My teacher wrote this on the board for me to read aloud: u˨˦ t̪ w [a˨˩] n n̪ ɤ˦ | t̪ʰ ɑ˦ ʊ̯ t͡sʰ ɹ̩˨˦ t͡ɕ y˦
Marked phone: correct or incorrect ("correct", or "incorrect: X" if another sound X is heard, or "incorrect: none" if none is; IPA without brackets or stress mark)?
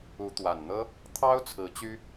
correct